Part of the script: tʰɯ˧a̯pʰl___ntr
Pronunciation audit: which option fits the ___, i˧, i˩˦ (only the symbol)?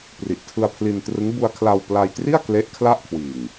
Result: i˧